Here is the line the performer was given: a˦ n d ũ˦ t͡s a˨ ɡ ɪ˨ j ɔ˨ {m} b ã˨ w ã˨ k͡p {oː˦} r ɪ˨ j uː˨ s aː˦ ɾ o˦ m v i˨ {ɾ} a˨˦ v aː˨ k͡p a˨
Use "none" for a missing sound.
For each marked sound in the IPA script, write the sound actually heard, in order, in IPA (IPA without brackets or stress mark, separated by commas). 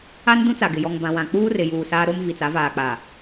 ŋ, uː˦, t͡s